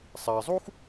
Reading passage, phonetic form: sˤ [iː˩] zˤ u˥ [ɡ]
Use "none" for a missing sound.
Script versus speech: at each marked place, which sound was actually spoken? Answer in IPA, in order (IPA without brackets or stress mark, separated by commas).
iː˩, x